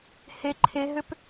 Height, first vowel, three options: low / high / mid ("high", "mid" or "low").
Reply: mid